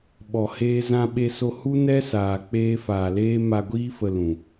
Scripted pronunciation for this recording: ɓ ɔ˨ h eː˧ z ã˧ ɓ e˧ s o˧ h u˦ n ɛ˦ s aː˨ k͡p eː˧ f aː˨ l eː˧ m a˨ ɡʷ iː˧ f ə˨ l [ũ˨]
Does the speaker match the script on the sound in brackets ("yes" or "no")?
yes